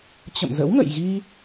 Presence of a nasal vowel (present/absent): absent